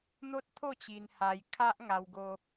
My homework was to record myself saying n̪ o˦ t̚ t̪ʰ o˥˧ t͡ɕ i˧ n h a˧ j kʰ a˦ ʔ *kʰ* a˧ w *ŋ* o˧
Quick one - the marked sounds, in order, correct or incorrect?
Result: incorrect, incorrect

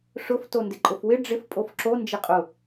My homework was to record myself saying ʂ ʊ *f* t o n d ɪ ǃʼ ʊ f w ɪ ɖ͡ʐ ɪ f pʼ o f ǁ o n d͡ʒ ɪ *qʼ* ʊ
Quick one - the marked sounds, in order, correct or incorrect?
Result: correct, correct

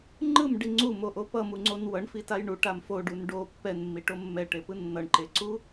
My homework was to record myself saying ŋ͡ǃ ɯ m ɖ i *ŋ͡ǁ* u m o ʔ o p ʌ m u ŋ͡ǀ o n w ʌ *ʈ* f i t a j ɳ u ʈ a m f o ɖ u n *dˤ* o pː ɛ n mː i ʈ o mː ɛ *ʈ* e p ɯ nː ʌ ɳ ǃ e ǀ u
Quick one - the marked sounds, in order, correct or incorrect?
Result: incorrect, incorrect, incorrect, correct

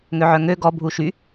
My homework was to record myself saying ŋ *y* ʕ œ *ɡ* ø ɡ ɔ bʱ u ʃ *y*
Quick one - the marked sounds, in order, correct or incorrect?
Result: incorrect, incorrect, correct

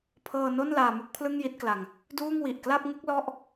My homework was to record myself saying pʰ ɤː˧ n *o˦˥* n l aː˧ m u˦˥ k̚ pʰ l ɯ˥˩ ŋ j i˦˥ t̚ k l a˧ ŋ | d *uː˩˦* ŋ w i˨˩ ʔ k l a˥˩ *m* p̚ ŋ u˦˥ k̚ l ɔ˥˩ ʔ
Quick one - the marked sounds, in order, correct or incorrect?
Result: incorrect, incorrect, incorrect

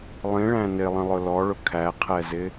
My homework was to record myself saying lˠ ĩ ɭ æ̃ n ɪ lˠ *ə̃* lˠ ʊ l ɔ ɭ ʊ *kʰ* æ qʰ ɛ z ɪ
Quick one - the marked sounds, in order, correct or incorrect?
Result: correct, correct

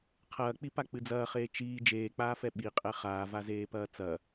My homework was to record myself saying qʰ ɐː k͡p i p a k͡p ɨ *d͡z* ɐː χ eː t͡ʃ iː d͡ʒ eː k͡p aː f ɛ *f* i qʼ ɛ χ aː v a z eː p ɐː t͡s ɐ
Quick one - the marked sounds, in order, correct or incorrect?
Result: correct, incorrect

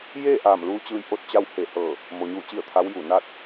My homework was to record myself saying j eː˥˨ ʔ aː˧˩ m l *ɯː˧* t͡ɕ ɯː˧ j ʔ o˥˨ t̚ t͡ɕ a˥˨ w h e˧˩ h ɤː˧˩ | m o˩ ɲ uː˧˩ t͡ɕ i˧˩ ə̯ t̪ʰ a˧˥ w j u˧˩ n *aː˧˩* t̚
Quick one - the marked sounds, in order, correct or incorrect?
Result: incorrect, incorrect

